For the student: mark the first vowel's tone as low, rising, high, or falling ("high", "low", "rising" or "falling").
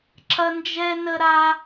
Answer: high